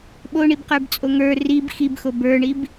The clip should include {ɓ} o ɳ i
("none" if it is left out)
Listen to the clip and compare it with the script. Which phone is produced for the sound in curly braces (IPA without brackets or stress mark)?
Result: ɓ